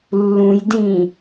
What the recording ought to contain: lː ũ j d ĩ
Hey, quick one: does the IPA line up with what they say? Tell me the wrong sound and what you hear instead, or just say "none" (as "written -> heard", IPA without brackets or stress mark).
none